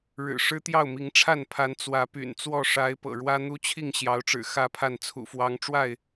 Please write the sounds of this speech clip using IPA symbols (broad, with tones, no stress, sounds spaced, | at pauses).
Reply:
ɻ ɻ̩˨˩ ʂ ɻ̩˦ t̪ j ɑ˥˨ ʊ̯ m i˨˦ ŋ ʈ͡ʂʰ a˥˨ n pʰ a˨˦ n t͡s w ä˨˦ p y̰˨˩ n t͡s w ɔ˥˨ ʂ a˨˦ ɪ̯ p ɤ̰˨˩ ɻ w ä˦ n̪ u˦ t͡ɕʰ i˥˨ ŋ ɕ j ɑ˨˦ ʊ̯ ʈ͡ʂ ɻ̩˨˩ x ä˥˨ pʰ a˥˨ n t͡sʰ ṵ˨˩ f w ɑ˨˦ ŋ ʈ͡ʂ w a˥˨ ɪ̯